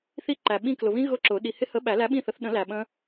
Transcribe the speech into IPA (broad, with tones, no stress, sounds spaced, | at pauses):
θ i˦˥ ǃ æ˨ ɓ ĩ˦˨ k l ʊ˨ β ĩ˦˥ ɣ ʊ˦˥ ǁ ʊ˨˩˦ ɗ i˨ h ɪ˦˥ h ə˨˥ ɓ æ˨˩˦ l æ˨˥ ɓ ĩ˦˨ θ ə˨˩˦ θ ɗ ə̃˨˩˦ l æ˨ ɓ ə̃˦˥